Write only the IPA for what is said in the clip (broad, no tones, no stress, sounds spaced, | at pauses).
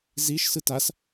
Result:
z i ʃ s ɯ t a s